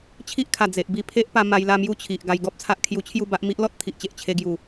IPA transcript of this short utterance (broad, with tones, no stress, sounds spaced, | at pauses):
t͡ɕʰ i˦ ʔ kʰ a˨˩ d͡z e˨ ʔ b i˥˧ pʰ e˦ ʔ p a˧ m a˧ j l a˥˧ m j u˥˧ t͡ɕʰ i˨ ʔ ɡ a˧ j ɡ ɔ˦ p̚ t͡sʰ a˦ ʔ kʰ j u˧ t͡ɕʰ j u˥˧ b a˦ ʔ m i˦ ʔ l ɔ˦ t̚ t̪ʰ i˨ ʔ t͡ɕ e˨ ʔ t͡ɕʰ e˧ ɡ j u˨˩